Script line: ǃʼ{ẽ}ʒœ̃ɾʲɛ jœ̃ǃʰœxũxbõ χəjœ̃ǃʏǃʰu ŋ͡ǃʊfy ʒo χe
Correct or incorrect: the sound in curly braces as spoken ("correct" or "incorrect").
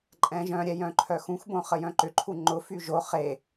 incorrect